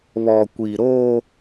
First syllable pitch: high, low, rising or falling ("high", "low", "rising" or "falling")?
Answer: low